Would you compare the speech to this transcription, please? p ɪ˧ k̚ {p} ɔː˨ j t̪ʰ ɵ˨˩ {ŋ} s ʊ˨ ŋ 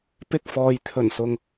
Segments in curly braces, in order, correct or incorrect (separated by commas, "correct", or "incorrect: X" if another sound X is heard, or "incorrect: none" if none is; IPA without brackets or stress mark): incorrect: f, incorrect: n